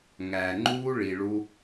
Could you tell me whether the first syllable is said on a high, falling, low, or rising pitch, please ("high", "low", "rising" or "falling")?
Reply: low